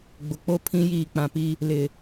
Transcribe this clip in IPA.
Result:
ɡ͡b ʊ˨ k͡p o˦ pʰ ĩ˦ j iː˨ k͡p ã˨ p i˦ | l ɪ˨

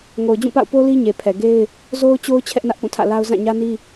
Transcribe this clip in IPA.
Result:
ŋ o˨ ʊ̯ d͡ʑ ũ˦˨ p a̰˦˨ ʊ̯ p o˦ l i˦ ɲ e˨ pʰ ɛ˨ ɡ e˦ ɪ̯ | z o˦ ʊ̯ t͡ɕ o˦ ʊ̯ t͡ɕʰ ɛ˦ ʔ n ä˦ ʔ p ũ˦˨ tʰ ä̰˦˨ l a˦ ʊ̯ z ã˦˨ ɲ ä˦ n i˦

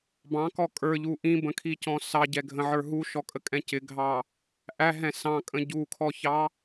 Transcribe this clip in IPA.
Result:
b ɑ̃ k ɔ kʼ ə˞ ʎ u ʔ ĩ b ə̃ kʰ i c ɔ̃ s ɑ ɟ ɛ ɡʱ ə̃ ʕ ə˞ ɦ u ʃ ɔ kʼ ə kʼ ɛ̃ c ɪ ɡʱ ɑ | ʔ æ ɦ ɛ̃ s ɑ̃ kʼ ə̃ ɟ u kʰ ɔ ç ɑ

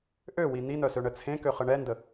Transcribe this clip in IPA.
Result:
ʔ ø w i n̪ i n̪ œ s ø ɳ ə t͡sʰ ẽ k ø χ ə ɳ ɛ n d ə

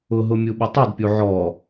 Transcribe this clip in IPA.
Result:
ʊ ɦ ʊ mʲ u ɓ ɪ tˤ u d pʲ u ʕ ɔ

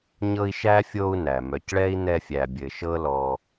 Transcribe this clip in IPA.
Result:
ɲ ɤ˦ i̯ ʃ æ˥ fʲ o˦ u̯ n æ˩ m œ˨ c ɭ ɛ˥ i̯ n ɛ˦ fʲ æ˨ bʲ ɘ˨ ʃ ɤ˥ l ɔ˨

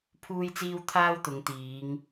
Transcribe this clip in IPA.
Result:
pʰ uː˥ j t͡s iː˥ w t̪ʰ aː˥ w t̪ ʊ˨˧ ŋ t̪ iː˨˧ ŋ

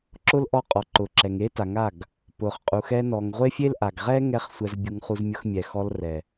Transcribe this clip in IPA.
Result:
ǁ ʊ˦ l ʔ ɔ˧ qʼ ɔ˨ ǃ ʊ˨ ǁ ɛ˨ ŋ e˦ t a˨ ŋ a˦˨ ɡ | p ʊ˨ χ qʼ u˨ x ɛ˧ n ɔ˨ ŋ ʁʷ e˦ fʲ e˦ l ʔ a˨ ɡ ʁ ɛ˦ ŋ ɛ˧ χ sʷ ɛ˧ z bʲ u˧ ŋ χ u˧ z mʲ ʊ˧ x mʲ ɛ˨ x ɔ˧ l r ɛ˨

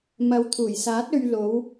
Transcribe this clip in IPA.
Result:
m ɐ˨˥ w t̪ʰ uː˨˩ j s aː˨˥ t̚ ɵ˧ ɥ l o˨˧ w

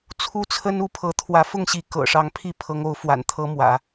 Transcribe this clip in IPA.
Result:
t͡sʰ u˥ t͡sʰ ə˥ n u˧˥ pʰ ɤ˧˥ t̪ʰ w ä˧˥ f ʊ˥˩ ŋ ɕ i˧˥ k ɤ̰˨˩ ʂ ɑ˧˥ ŋ pʰ i˥˩ pʰ ɤ˧˥ ŋ o˧˥ ʊ̯ f w a̰˨˩ n t̪ʰ ɤ˧˥ m w ä̰˨˩˦

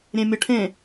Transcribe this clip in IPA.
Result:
ɾʲ ẽ mʲ ɤ ʈʰ ẽ

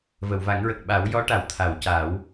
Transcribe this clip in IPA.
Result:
v ə˨˩˨ w v a˨˩˦ ŋ ɹ ə˨˩ k̚ ɓ a˨˩˦ w j ɔ˧˥ ʈ a˨˩˨ w t̪ʰ a˨˩˨ w c a˨˩˦ w

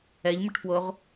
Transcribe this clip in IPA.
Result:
ɛ ʎ m ə ʈ f w o ʁ

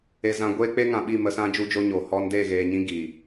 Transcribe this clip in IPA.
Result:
e˧ z ã˧ ɡʷ eː˧ k͡p e˦ ŋ ã˨ ɓ i˦˨ m ə˧ s ã˧ d͡ʒ u˦ d͡ʒ o˦ ɲ o˨ h ɔ˧ n d e˦˨ ɣ eː˨ ɲ ĩ˧ ɡ i˨

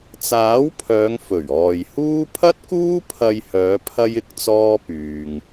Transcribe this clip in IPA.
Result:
t͡s aː˨˥ w pʰ œː˨˧ ŋ f ɵ˨˩ ɥ ɔː˨ j h uː˥ pʰ ɐ˥ t̚ k uː˥ pʰ ɐ˧ j h œː˨˧ pʰ ɐ˥ j ɪ˧ k̚ t͡s ɔː˥ p yː˧ ŋ

